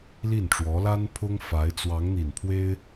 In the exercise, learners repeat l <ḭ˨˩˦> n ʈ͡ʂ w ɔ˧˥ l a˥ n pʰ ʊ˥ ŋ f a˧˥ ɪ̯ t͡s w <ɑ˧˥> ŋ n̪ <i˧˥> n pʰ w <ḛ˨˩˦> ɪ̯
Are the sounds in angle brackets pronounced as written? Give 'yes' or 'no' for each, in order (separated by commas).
no, yes, no, no